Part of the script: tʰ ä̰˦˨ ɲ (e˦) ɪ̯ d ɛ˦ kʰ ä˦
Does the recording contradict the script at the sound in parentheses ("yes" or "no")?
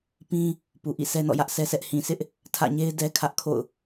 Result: no